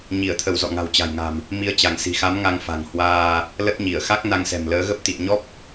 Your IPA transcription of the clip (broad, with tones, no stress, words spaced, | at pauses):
ɲi˧˩ə̯t̪ʰə˧˩w zɔ̰˧˨ŋa̤˨˩wt͡ɕa̤˨˩jŋa̤˨˩m | mi˨˦ə̯t͡ɕa˧˩ŋsi̤˨˩xa˨˦m ŋa˧ŋfa̤˨˩ŋhwaː˧ | lə˦˥t̚ɲi˧˩ə̯ xa˦˥k̚ na˧ŋsɛ̤˨˩mləː˨˦ ɣə˦˥p̚t̪ḭ˧˨ə̯ɲɔ˦˥p̚